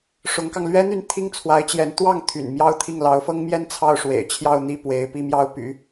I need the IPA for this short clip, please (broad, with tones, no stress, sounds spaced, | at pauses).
ʂ ʊ˧˥ ŋ k ɑ˧ ŋ l ɥ ɛ˥ n̪ y˥˧ n t̪ʰ i˥˩ ŋ t͡sʰ w a˧˥ ɪ̯ t͡ɕ j ɛ˧˥ n t̪ w ɑ˥˩ ŋ t̪ʰ y̰˨˩ n m j ɑ˥ ʊ̯ t̪ʰ i˥˩ ŋ l ɑ˧˥ ʊ̯ f ɤ˥ ŋ m j ɛ˥ n t͡sʰ ɑ˥˩ ʊ̯ ʂ w ḛ˨˩ ɪ̯ t͡ɕʰ j ɑ˥˩ ʊ̯ n̪ i˥ p w e˧˥ ɪ̯ p i˥˧ m j ɑ˥˩ ʊ̯ p y̰˨˩˦